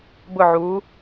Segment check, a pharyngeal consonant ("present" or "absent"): present